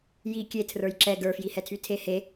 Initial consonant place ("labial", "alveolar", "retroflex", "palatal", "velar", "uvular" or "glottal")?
palatal